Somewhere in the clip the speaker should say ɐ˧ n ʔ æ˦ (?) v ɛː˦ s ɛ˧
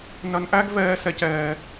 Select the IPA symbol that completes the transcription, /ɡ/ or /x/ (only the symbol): ɡ